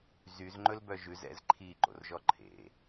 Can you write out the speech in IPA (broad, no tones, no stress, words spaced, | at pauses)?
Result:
zyzŋ͡ǃɵlbœ ʒʉz ɛ̰z ǃʰiǃo̰rʒɔ ǃʰḛ